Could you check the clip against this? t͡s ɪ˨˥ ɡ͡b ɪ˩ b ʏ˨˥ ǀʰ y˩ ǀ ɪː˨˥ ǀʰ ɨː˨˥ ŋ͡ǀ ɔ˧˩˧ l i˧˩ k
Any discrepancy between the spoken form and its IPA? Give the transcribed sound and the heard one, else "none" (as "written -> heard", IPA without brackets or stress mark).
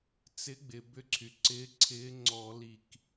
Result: ɨː˨˥ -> ɪː˨˥